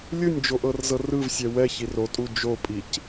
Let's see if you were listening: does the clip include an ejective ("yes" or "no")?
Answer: yes